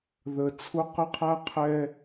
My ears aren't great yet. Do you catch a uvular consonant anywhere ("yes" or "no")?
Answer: yes